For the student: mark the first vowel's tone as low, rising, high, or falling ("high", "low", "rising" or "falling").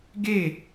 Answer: falling